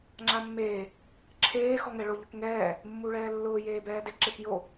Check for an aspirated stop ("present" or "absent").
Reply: present